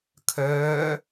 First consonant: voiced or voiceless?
voiceless